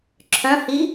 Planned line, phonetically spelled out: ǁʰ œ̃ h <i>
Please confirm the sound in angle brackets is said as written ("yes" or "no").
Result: yes